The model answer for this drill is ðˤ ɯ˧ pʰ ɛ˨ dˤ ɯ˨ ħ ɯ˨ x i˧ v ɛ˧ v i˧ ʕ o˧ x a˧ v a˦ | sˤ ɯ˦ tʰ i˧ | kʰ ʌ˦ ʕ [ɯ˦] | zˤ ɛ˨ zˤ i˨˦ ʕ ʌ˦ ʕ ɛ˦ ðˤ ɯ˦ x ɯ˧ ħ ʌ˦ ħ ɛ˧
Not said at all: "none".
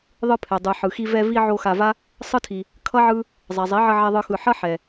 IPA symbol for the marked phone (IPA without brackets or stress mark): ɯ˦